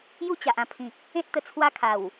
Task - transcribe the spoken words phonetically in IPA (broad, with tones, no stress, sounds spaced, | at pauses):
j u˥˧ t͡ɕ a˨ ʔ ã˧ pʰ ĩ˨ k̚ | ẽ˦ t̚ t̪ ə˨˩ t͡sʰ w a˦ kʰ a˨˩ w